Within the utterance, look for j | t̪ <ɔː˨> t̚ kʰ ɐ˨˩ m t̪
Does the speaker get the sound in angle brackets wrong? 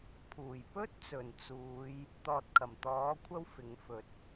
no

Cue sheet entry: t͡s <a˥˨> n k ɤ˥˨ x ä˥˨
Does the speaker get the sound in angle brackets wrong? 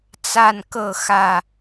no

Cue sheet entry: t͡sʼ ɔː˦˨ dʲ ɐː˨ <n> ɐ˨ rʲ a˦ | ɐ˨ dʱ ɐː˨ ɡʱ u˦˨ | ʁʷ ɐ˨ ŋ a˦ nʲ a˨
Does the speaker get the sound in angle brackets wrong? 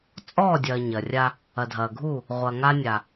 yes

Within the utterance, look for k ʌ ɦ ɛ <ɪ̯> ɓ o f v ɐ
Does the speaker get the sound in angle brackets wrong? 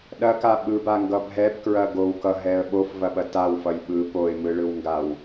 yes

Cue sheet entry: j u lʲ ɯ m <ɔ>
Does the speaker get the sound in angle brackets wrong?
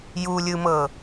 yes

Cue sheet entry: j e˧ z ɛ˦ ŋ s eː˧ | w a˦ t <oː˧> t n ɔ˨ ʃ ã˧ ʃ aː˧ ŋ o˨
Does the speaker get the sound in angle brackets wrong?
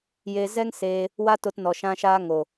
yes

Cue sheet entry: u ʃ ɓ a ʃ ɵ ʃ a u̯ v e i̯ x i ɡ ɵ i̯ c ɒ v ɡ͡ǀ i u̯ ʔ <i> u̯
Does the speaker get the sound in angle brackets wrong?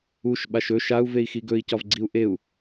yes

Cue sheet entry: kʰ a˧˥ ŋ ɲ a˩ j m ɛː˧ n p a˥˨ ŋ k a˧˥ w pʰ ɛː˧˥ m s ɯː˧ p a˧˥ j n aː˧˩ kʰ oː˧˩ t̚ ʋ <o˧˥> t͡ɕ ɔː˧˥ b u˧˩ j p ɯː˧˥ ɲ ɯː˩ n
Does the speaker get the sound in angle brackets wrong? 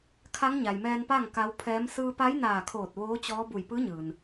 yes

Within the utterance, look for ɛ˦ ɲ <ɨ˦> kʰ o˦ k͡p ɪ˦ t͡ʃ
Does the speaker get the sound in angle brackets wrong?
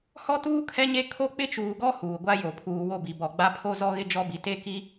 yes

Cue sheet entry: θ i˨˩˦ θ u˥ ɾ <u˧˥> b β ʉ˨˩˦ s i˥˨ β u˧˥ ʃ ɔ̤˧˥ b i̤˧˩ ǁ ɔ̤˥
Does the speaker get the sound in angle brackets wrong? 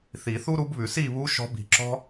no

